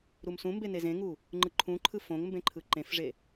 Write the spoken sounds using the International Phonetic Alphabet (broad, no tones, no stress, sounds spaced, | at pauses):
ɾ u m s ũ m b e n e z ẽ ŋ u | ŋ͡ǃ ɯ ǃʰ ũ ǃʰ ɯ f õ ŋ m b ẽ ǃʰ ɯ ǃ ẽ f ʐ e